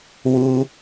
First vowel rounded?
yes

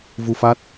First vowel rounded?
yes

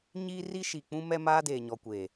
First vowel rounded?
no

